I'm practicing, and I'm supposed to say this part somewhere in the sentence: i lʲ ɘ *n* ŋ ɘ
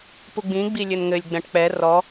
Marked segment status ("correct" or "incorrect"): correct